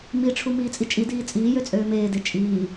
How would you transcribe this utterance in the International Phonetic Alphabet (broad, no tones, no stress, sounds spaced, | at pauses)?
m i ʈ͡ʂʰ u m iː t͡sʼ i t͡ʃʼ i d iː t͡sʼ iː j ø t͡sʼ øː m eː d e t͡ʃʼ iː